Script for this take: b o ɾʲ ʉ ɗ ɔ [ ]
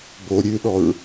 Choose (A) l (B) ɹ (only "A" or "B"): B